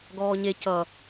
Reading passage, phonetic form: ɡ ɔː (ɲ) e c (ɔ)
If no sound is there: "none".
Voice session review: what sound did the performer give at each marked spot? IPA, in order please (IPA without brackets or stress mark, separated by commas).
ɲ, ʌ